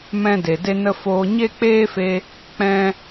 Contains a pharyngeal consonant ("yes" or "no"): no